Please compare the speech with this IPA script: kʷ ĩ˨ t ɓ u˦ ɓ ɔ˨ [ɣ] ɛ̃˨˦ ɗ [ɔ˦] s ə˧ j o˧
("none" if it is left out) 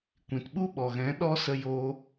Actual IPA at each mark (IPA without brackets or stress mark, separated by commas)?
ɣ, ɔ˦